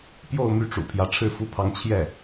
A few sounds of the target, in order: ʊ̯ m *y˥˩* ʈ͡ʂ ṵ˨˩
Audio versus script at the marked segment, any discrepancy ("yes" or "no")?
no